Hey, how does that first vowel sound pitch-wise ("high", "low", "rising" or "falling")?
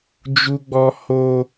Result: high